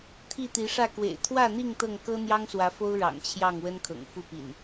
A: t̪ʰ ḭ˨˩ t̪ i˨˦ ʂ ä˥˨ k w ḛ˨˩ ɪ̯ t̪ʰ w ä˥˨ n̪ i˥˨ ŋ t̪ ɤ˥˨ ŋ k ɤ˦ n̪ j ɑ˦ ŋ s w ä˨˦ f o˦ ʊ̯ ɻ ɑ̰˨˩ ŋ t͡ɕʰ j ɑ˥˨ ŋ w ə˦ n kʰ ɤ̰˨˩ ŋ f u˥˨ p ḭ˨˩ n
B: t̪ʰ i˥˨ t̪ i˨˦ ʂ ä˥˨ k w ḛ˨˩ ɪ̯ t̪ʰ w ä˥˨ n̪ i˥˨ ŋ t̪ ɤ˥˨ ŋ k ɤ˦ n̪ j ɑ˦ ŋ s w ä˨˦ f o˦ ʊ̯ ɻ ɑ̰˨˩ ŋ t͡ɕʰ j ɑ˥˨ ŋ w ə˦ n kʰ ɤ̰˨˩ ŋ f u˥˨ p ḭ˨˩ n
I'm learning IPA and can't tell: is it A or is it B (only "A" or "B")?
B